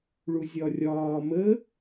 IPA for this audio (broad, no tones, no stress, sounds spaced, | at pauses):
ɭ u zʲ ɒ rʲ ɒː m ə